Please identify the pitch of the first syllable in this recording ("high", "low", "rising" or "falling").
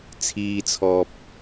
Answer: high